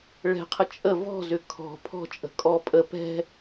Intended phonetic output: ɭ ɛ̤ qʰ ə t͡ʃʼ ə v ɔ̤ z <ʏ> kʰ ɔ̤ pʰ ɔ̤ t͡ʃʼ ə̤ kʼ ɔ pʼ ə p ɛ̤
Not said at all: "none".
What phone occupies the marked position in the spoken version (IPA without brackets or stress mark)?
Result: ʏ